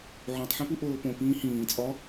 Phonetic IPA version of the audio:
ʕ õ tˤ ħ ĩ p u ʔ oː p õ p ĩː h ĩː t͡sʼ ɒ

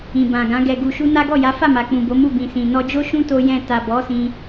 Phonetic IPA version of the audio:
ĩ˨ b ã˨ ɡ ã˨˦ ɡ ɛ˧ ɡ u˧ ʃ u˦ n a˦ ɡ ɔ˦˨ j a˨˦ f a˦˨ m a˨ k͡p ũ˨ b o˨˦ m u˦˨ b ĩ˨ s ĩ˨ n ɔ˧ d͡ʒ o˦ ʃ ũ˦ t o˦ j ɛ̃˦˨ t a˨ b ɔ˨˦ s ĩ˧

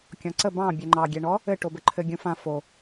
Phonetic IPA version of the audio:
kʲ ɔ̃ ǀ ə b ɑ̃ bʲ ɛ ŋ͡ǃ ɑ ɡʲ ɛ ɳ ɔ | ɘ ʈ o b ɘ ǃʰ ɘ ɡʲ ũ f ã f o

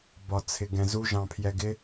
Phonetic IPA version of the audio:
b ɒ t͡sʰ ɪ ɡ ɛ̃ z u ʒ ɑ̃ pʰ j ɛ ɡ ɪ

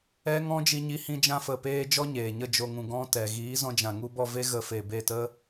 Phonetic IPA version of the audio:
ɛ˦ ŋ ɔ̃˦ d͡ʒ i˧ ɲ i˧ h ĩ˧ d͡ʒ ã˧ f ə˨ p eː˧ d͡ʒ ɔ˧ ɲ eː˨ ɲ ə˦˨ d͡ʒ o˨ ŋ ũ˨ ɡ ɔ̃˧ t ɛ˨ ɣ iː˨˦ z ɔ̃˧ d͡ʒ ã˨ ŋ u˧ b ɔ˦˨ v e˦ ɣ ə˧ f e˨ b e˦˨ t ə˦

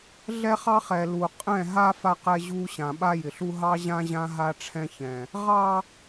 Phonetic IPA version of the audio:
ɮ ɛ˦ χ ɑ˦ χ ɛ˨ l u˨ qʼ ɛ̃˦˨ ɦ a˦ f a˦ q ɛ˦ ʑ u˦ ɕ ã˨ ɓ a˦ j ɪ˨ ɬ u˦ ɦ ɑ˦ ʑ ã˦ ʑ ã˦ ɦ a˦ ʈ͡ʂʰ ɛ̃˦ ç ɛ̃˨ | ʁ ɑ˦

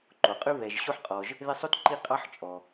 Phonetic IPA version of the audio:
ǃ o˩ qʼ ʉ˥ β ɛ˨ ʒ ɕ o˥ ħ qʼ ɔ˨ ʒ | ð ɪ˦ sˤ o˥ t ǃ i˦ qʼ ɑ˥ ħ t͡ʃʼ ɔ˩

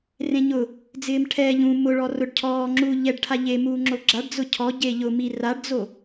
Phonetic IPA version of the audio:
r ẽ ɲ ʊ | d͡z ɪː m ʈʰ ɛ ʎ ũ m ʊ ɭ ɔ r ʊ ɖ cʰ ɔː ŋ͡ǁ u ʎ ɛ ɖ ʈʰ a ʎ e m uː ŋ͡ǁ o ɡ͡ǁ a ɖ d͡z ʊ cʰ ɔ ɟ e ʎ ʊ m i r a ɖ d͡z o

